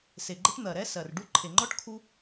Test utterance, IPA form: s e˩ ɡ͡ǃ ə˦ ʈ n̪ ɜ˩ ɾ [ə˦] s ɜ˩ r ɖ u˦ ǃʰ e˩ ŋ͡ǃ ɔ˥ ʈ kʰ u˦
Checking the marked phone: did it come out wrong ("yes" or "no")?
yes